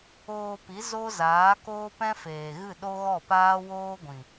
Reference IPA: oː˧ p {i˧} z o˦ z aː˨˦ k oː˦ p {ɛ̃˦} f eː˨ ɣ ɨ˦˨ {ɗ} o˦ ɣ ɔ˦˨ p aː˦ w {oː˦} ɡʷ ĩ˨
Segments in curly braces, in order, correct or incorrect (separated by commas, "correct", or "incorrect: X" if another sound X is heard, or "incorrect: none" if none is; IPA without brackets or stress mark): incorrect: i˨˦, correct, correct, correct